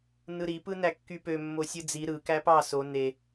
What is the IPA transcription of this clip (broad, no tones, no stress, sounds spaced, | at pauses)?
n ɯ ɾ i p ɯ n æ kː y p ø mː o sʲ ɯ d͡z i ɾ ɯ k æ p ɑ s o n e